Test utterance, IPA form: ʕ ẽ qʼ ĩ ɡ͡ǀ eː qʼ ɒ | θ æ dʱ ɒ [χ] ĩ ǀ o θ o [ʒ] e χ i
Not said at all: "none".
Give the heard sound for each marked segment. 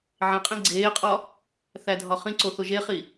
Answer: χ, ʒ

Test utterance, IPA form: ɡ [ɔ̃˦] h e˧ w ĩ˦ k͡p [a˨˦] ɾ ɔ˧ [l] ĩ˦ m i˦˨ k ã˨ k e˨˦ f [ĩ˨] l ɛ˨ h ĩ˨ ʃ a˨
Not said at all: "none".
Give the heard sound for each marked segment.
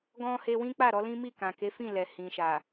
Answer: ɔ̃˦, a˦˨, l, ĩ˦˨

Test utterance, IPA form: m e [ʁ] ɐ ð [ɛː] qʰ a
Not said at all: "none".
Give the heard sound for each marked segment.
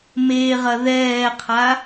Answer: ʁ, ɛː

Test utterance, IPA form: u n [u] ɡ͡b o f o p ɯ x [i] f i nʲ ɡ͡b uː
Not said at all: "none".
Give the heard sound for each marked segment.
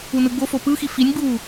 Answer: ɯ, i

